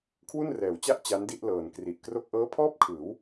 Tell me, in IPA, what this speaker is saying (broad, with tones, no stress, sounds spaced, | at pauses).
kʰ w u˥˩ n r ɛː˩˦ w t͡ɕ a˥˩ ʔ t͡ɕ a˦˥ n d i˥˩ ʔ l ɤː˨˩ n k r i˨˩ ʔ k r o˥˩ k̚ ʔ ɤː˦˥ pʰ ɔː˥˩ p̚ kʰ ɯː˩˦ w